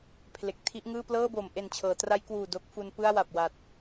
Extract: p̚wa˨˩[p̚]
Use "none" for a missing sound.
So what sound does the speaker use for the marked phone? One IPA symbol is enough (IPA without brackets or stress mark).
t̚